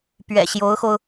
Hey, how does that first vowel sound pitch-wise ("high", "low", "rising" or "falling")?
low